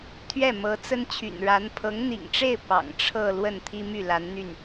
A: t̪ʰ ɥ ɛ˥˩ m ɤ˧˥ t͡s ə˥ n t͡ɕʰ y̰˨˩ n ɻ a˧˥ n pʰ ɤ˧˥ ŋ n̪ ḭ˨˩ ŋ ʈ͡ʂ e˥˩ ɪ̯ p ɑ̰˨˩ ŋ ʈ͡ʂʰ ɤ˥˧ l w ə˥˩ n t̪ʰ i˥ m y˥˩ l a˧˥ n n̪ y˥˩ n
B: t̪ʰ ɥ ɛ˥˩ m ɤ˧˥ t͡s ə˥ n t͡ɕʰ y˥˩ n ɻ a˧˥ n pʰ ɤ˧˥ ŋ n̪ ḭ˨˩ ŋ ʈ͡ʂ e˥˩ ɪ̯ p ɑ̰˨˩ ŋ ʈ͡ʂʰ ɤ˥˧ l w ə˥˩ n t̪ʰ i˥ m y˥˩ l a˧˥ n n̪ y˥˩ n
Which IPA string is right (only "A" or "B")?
A